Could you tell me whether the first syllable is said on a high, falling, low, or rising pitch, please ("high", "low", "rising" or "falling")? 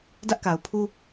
high